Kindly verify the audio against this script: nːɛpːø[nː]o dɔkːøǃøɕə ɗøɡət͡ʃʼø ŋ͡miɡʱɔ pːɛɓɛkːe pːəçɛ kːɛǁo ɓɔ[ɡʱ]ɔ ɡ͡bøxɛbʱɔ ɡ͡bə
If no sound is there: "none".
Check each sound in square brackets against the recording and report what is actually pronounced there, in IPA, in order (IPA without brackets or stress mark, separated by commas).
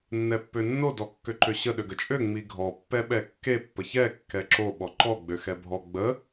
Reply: nː, ǃ